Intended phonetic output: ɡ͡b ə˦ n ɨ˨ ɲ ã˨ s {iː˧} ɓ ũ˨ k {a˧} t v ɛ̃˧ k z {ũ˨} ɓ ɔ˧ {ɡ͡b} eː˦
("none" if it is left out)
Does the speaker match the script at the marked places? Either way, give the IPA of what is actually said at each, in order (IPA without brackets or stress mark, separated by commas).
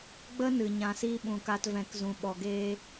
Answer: iː˧, a˧, ũ˧, ɡ